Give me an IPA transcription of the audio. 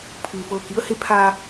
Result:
pʰɯː˩fɤː˧˩ ki˧ə̯he˧ pʰa˧

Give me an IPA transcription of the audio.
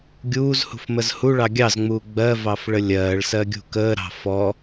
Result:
ɡʲuːzhṳfməz huɭɑ ɡʲɑzŋ͡muː ɡ͡bɜvɑfɭə lʲɜːɭsɜɡʲṳ kəːɾɑ̤ fɔ

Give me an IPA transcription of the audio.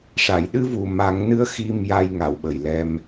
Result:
ʂa˨˩˨jɗɨ˧vu˨˩ ma˨˩˦ŋnɨ˧˥ə̯ xi˧m ja˧jŋa˨˩˨w ɓə˨˩jlɛ˧m

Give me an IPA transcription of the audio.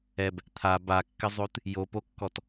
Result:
ɛb | t̪ʰa bakːɪzˤot | jopokːɔt

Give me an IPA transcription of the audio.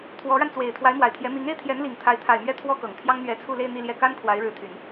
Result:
t̪ʰwɔ˧˥ɻa˧nt͡swe˨˩ɪ̯ t̪ʰwa˧˥ɪ̯mwa˨˩ɪ̯t̪ʰjɛ˧˥ mi˧˥ŋe˥ɪ̯t̪ʰjɛ˧˥nli˨˩ŋ t̪ʰa˧˥ɪ̯t̪ʰa˨˩ɪ̯mɥɛ˥˩ t̪ʰwɔ˥kɤ˨˩ŋ t̪ʰjɑ˥ŋn̪ɥɛ˧˥t͡sʰu˥˧le˥˧ɪ̯ n̪i˥˧ljɛ˥˩ ka˥n kʰwa˧˥ɪ̯ɻɻ̩˧˥t̪ʰy˨˩˦n

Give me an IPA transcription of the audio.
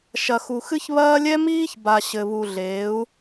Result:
ʃɐ˨xu˨xɨ˦çβɐː˦ lʲɛ˦miː˦çba˨ ɕɘ˨βu˨ɮeː˨˦u̯

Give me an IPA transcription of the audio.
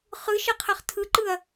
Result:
χɯʃɜqʰɜχ tʰɯǃɯɐ̯

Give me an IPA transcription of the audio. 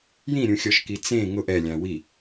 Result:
jĩɾʲũxʲɔʃki t͡sẽ ŋʊʔ ɛlʲã wi

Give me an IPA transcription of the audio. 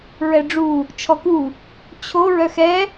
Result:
ɹɛɖ͡ʐu | t͡ʃʰɔku | t͡ɕʰo ɹœxɛ

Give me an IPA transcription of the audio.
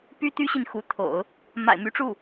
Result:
py˥t̪y˥ɕi˨n xu˧˥t̪ʰo̰˨˩˦ʊ̯ | ma̰˨˩ɪ̯my˧˥ʈ͡ʂu˥˩

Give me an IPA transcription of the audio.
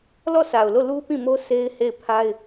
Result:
lɔ˦˨sa˨ʊ̯lo˦˨ lu˦ pĩ˦˨mo˦ sʰe˦ɪ̯he˦˨ɪ̯pʰa˦ɪ̯

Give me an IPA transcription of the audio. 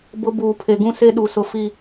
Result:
bʊ˦ buː˨ pʰe˨ɡũ˦ se˦ɗu˨sʊ˨fi˨

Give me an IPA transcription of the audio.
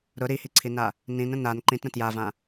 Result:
ɾʊ ɾihiǀʰina | nĩnə̃ nan ǃĩtɾə̃ tjavã

